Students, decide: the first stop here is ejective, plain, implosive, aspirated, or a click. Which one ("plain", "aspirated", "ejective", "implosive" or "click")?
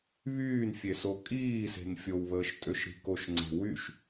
ejective